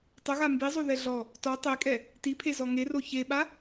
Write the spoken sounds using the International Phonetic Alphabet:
tˤ ʊ ɣ a m b i zˤ o ð ɛ ɮ ɔ | t ɔ tˤ e kʼ ɛ | t i pʰ e z ɔ ŋ e r o ç e ɓ a

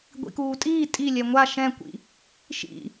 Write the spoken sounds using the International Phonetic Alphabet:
ɡʷ ḭ k uː tʼ iː tʼ i lʲ ɛ ŋʷ a ʃ ɛ̃ kʷ ḭ | ʃ ḭ

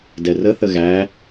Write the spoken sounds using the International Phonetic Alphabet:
d ɛ r ə θ ə ɣ æ

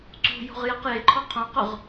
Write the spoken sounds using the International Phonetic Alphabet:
ǀ ṳ j o̤ ʁ j ɛ q j e ǃʰ ɔ qʰ õ q ʊ ʁ

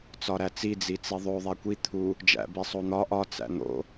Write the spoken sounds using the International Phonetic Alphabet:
t͡s ɒ ɾ æ t͡s i d͡z i t͡s i ðˤ o ðˤ æ kʷ i t̪ʰ u | d͡ʒ æ̰ b i sˤ o n̪ ɒ ʔ ɒ t͡s æ̰ n̪ o̰

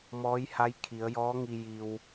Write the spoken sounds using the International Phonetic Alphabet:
m ɔː˧˥ j h a˧˥ j kʰ i˩˧ ə̯ j ɔː˧˥ ŋ i˧ j i˧ w

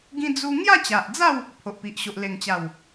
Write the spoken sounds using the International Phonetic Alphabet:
ɡ ĩ˦ d͡z u˦ ŋ j a˥˧ t͡ɕ a˨ ʔ d͡z a˥˧ w | pʰ o˨ ʔ p i˨ ʔ ɕ o˨ ʔ l e˨˩ ŋ t͡ɕ a˨˩ w

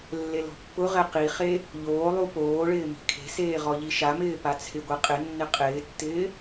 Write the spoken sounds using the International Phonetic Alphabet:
lː e l ɔ̤ pː ʊ ʁ ɛ q i χ e | ʎ oː lˠ u p oː ɭ ɪː m i̤ kʰ e̤ s eː ʁ ɔ ʎ i ʃ a m ɪː p a t͡sʰ ɪ ɡʷ ɛ qʼ ɪ nː ɪ qʼ ɪː tː ɪː

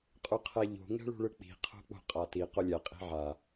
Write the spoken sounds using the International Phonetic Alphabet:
qʼ u qʰ ɛ ʎ o̤ ŋ ɛ̤ ɭ ṳ ɭ ɯ k͡p i̤ qʰ o̤ k͡p o̤ qʼ a t i q o lʲ ɛ qʼ i̤ ʕ a

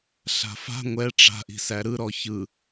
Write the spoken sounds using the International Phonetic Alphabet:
ɬ a̤ f a̤ ŋʷ ɛ ʈ͡ʂ a̤ ʔ i̤ s æ ɾ ɯ ɾ ɔ ç ɯ

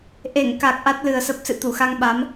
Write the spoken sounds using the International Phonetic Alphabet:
ʔ e˧˩ ŋ k a˨˩ k̚ ʔ a˦˥ t̚ l ɨ˨˩ ə̯ s ə˦˥ p̚ s ɨ̰˧˨ t̪ u˧˩ x a˧ ŋ ɓ a˨˦ m

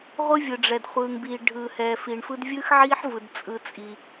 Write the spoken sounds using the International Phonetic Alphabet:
ʁʷ ɯ˦ vʲ ɯ˨ ɖ͡ʐ ɛ˨ d χʷ ɯː˨ ŋ b iː˨ ɖʱ ɯː˨ h ɛː˨ f i˨ ɳ f ɯ˦ d vʲ ɯː˦ x ʕ i˦ ħ v ɯ˨ d t͡sʼ ɯ˦ t͡sʼ i˦

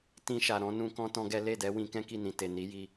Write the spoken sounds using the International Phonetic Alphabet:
t ĩ˧ ʃ a˨ ɾ ɔ̃˨˦ n ũ˧ k ɔ̃˦ t ɔ̃˦ ɡ ɛ˦ l e˦˨ d ɛ˨˦ w ĩ˧ k ɛ̃˦ k i˦˨ n ĩ˨ t e˨ n i˨˦ j i˧

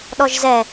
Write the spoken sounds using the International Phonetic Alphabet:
ɗ ɔ ʒ z ɛ

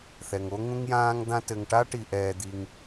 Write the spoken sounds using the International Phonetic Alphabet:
θ ɛ˩ ŋ o˥ ŋ ũ˥ ŋ j ãː˥ ŋ d̪ ã˥ t ɘ˨ ŋ ʈ a˥ ʈ i˨ ʔ ɛː˨ d̪ i˨ ŋ

